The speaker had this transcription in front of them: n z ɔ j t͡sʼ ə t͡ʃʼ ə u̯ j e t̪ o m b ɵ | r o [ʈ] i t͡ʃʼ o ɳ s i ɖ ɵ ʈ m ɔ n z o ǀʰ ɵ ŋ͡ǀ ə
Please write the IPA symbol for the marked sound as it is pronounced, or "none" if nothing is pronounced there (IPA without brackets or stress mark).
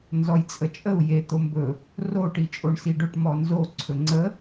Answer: ʈ